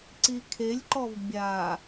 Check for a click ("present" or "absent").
present